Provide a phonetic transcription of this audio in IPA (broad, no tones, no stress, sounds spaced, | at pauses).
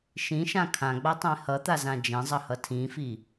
ʃ ĩ ʃ ã kʰ ã ɡ͡b a tˤ ẽ h ʌ t̪ a z ã d͡ʒ ẽ zˤ ʌ h ʌ tʰ ĩ f i